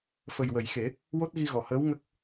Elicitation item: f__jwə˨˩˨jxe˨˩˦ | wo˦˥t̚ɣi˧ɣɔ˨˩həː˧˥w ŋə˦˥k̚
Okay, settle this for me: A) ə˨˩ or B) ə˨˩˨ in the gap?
A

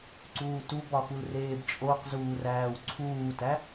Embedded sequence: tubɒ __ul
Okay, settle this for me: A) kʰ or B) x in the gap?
B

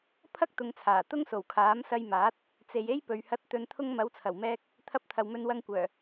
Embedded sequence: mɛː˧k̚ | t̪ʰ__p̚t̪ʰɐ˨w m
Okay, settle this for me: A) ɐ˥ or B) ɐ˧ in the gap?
B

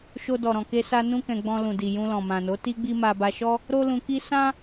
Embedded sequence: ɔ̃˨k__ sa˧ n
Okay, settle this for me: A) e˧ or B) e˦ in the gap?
A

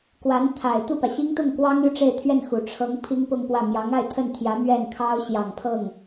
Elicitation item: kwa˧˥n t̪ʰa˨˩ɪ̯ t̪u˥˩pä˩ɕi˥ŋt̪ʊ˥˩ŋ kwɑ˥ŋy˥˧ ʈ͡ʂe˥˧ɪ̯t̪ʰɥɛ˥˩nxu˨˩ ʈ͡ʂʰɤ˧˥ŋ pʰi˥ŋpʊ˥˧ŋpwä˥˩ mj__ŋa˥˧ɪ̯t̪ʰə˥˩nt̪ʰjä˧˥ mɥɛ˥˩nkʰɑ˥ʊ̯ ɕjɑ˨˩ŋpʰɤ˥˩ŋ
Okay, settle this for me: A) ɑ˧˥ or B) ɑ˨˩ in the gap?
A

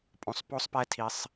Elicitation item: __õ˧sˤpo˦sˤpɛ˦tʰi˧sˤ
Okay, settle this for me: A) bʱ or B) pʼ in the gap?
B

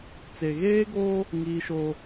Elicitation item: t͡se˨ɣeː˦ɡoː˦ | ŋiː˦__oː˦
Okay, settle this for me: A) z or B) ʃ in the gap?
B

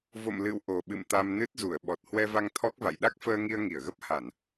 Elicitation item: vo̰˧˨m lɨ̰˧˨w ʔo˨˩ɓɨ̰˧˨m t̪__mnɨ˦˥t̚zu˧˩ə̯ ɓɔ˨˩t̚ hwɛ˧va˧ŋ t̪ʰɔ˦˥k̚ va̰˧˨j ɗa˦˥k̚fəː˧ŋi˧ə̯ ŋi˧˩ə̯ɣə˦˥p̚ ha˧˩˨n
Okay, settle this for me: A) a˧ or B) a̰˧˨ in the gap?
A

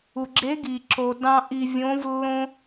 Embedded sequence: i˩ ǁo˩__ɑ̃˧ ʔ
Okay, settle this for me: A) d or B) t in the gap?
A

